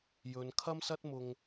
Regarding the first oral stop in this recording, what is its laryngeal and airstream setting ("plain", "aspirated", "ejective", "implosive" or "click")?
aspirated